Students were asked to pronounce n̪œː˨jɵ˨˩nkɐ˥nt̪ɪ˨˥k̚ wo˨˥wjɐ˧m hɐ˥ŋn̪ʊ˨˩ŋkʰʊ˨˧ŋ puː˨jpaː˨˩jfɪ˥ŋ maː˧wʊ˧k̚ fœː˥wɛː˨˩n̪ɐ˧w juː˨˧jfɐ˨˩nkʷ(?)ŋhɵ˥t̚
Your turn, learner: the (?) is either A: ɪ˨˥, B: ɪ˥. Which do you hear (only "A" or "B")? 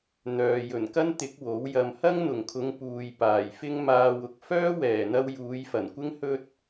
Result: B